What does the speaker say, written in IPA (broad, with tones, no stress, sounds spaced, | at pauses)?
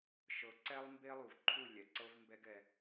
ʃ ɤ˨˦ ǀ ɛ˦ lˠ m b e˦ lˠ u˨ v ǃʰ u˦˨ lʲ ɛ˨ ǀ ɤ˦ v m b ɛ˦ ɡ ɛ˧